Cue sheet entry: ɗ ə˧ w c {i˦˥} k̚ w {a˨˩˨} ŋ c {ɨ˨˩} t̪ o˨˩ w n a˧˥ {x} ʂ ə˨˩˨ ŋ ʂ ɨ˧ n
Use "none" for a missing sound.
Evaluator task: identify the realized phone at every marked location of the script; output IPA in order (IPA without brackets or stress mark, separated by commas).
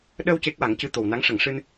e˦˥, a˨˩˦, ɨ˧, ŋ